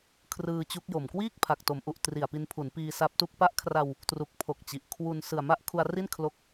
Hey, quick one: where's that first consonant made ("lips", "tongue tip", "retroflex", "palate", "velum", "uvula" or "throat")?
velum